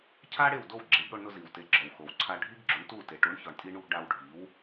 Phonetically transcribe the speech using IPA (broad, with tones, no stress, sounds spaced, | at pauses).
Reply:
cʰ a˥ ɽ e˥˩ w d o˥˩ w ɡ͡ǁ e˩˥ ɡ ɽ o˧ ɳ n ʊ˧ z i˩ w t e˩˥ ɡ͡ǁ ɔ˩ w x o˩ w ǀʰ a˧ ɖʱ i˥ ɡ ɡ͡ǁ u˩˥ ɳ t u˥˩ t e˩ ʈ u˩˥ ɳ ç ɔ˩ ɳ tʼ i˧ ɳ u˧ ɡ ɖ a˧ w ɖʱ i˩˥ w